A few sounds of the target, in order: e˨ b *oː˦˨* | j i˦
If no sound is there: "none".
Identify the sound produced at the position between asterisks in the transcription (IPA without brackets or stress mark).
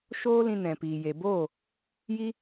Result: oː˦˨